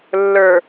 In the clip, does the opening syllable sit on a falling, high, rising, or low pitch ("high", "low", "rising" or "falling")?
low